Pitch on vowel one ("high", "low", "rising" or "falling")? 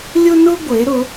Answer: high